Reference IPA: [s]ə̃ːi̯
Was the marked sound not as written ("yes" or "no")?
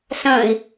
no